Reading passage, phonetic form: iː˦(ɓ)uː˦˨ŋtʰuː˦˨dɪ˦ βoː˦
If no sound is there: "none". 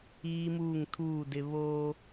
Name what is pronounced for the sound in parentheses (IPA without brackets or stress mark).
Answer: m